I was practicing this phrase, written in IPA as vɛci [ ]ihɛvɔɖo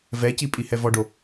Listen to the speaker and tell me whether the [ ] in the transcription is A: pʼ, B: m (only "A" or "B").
A